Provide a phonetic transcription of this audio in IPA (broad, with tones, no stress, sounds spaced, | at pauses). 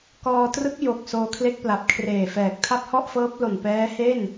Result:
k ɔː˧ t r ɯ˦˥ k̚ j o˨˩ k̚ s oː˧ kʰ l e˦˥ k̚ p l a˨˩ p̚ kʰ r eː˨˩ f ɛː˨˩ k̚ tʰ a˥˩ p̚ h ɔ˥˩ ʔ f ɤː˦˥ p̚ l o˨˩ n p ɛː˦˥ h e˥˩ n